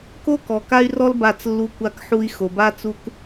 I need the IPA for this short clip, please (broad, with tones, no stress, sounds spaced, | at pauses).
k o˦ k ɔ˨ k a˦ y̯ r ɔ˦ l b a˦˨ t͡s lː u˦ kʷ a˦ k ħ u˦ i̯ x o˨ b a˦ t͡s u˦ k